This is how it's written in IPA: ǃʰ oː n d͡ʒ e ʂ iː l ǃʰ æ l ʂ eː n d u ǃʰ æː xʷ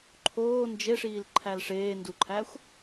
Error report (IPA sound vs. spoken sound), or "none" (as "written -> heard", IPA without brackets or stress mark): none